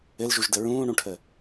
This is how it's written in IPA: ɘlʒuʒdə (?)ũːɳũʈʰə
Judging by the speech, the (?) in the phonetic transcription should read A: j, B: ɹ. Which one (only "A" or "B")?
B